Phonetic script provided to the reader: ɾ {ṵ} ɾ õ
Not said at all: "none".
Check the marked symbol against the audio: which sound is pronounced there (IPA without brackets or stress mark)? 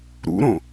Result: ṵ